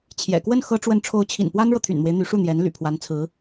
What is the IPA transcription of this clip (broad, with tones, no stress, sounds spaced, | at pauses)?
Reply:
t͡ɕʰ j ɛ̰˨˩ k w ə˥˩ n x ɤ˥ ʈ͡ʂ w ə˥˩ n ʈ͡ʂʰ o˧˥ ʊ̯ t͡ɕʰ ḭ˨˩ n p w a˥ n ɻ ɤ˨ t̪ʰ y̰˨˩ n m w e˦ ɪ̯ n̪ y˧˥ ʂ u˥˩ n̪ j ɛ˧˥ n l y̰˨˩ pʰ w a˧˥ n t͡sʰ ɹ̩˧˥